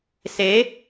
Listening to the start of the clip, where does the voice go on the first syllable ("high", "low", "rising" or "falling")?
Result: rising